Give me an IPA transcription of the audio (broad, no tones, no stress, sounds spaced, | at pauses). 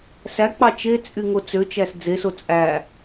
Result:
s æ k͡p ɑ t͡ʃ e t͡sʼ y ŋ o t͡s ø t͡ʃ æ s d͡z e s o t͡sʼ æ